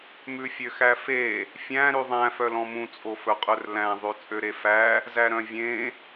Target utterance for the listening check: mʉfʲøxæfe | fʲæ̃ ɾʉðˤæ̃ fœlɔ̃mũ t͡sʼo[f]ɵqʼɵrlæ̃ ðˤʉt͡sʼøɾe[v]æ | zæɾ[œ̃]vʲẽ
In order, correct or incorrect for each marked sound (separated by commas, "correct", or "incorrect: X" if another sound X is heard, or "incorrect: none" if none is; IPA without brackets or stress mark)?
correct, incorrect: f, correct